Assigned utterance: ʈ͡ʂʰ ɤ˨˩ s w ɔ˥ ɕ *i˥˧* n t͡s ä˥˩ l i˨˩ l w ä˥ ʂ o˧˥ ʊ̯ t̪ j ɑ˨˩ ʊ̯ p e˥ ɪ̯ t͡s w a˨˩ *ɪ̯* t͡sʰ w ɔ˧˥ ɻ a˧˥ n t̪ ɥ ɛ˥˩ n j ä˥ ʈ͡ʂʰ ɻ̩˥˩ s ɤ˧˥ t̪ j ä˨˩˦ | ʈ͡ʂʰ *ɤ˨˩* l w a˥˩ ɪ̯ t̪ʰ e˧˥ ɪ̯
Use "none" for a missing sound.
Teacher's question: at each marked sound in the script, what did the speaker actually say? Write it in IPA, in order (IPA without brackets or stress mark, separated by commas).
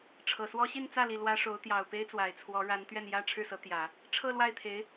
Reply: i˥˧, ɪ̯, ɤ˥˧